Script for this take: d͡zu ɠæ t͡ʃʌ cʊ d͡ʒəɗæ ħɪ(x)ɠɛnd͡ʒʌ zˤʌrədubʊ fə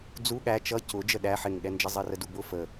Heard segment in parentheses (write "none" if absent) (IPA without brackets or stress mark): ŋ